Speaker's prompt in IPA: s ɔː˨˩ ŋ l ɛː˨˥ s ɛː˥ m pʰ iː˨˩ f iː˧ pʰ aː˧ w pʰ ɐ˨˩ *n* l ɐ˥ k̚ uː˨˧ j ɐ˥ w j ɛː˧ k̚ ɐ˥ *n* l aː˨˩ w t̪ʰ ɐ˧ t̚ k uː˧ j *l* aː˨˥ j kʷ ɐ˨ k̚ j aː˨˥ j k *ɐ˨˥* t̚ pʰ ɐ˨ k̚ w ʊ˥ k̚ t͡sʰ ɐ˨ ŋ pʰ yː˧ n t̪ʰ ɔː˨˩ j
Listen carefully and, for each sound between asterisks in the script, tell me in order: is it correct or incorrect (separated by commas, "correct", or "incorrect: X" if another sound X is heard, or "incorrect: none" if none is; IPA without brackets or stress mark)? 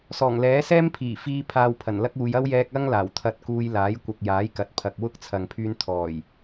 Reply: correct, incorrect: ŋ, correct, correct